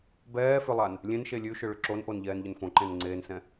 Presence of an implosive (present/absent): absent